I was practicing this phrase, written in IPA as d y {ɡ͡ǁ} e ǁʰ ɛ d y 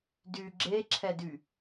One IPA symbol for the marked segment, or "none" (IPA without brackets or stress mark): ɡ͡ǁ